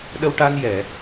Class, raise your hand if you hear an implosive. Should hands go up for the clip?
yes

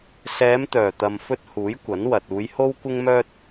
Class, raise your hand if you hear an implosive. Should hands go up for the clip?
no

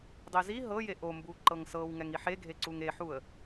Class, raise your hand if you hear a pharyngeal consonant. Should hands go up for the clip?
yes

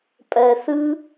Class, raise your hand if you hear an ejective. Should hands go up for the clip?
yes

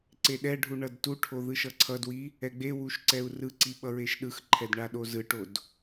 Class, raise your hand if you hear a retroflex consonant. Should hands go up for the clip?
yes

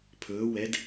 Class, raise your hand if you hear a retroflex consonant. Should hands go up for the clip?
no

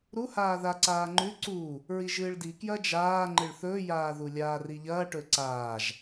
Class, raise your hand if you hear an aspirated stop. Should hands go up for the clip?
no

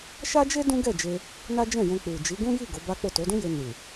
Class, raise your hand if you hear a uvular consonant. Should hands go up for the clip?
no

